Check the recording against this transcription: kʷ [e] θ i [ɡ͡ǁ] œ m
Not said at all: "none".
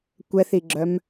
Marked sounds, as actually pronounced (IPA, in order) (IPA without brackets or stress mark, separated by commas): ɛ, ɡ͡ǁ